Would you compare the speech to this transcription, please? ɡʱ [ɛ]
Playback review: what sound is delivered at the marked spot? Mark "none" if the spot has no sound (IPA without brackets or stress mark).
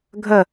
ə